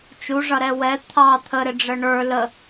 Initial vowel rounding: rounded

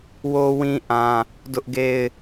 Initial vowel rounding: rounded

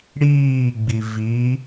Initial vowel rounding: unrounded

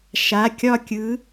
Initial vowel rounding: unrounded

